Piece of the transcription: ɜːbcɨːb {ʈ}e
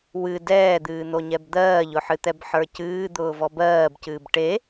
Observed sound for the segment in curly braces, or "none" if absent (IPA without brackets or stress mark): ʈ